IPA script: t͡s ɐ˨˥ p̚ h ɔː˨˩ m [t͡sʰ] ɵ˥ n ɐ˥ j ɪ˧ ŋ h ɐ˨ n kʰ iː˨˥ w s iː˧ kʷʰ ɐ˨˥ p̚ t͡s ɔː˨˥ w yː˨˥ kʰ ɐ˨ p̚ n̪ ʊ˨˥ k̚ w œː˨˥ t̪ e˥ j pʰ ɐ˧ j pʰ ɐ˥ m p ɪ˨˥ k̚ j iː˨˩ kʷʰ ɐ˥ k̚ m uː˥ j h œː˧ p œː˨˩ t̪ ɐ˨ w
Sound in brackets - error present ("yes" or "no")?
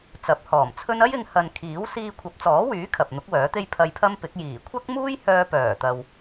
no